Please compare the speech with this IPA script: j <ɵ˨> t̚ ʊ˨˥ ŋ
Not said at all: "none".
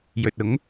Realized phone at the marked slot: ɵ˨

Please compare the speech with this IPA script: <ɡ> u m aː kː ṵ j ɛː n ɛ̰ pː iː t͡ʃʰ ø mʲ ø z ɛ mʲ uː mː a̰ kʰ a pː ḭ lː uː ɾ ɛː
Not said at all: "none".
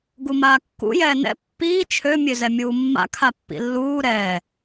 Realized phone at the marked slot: ɡ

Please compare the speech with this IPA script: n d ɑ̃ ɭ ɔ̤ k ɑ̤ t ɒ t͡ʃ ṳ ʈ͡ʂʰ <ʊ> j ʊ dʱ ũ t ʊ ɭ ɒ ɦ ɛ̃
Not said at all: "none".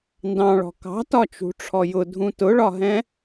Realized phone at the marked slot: ɔ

